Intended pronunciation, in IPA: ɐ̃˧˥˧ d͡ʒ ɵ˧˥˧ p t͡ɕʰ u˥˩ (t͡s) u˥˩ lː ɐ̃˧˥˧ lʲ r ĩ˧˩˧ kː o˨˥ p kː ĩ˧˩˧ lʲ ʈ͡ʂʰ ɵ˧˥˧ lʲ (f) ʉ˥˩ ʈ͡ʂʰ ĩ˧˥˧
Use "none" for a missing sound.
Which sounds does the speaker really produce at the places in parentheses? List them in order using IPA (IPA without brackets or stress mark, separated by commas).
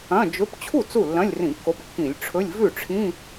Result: t͡s, v